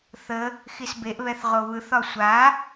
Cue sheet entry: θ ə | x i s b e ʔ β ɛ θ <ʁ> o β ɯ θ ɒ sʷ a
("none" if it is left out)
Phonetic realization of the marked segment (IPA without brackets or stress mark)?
ʁ